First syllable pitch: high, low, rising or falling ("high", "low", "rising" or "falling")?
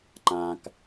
low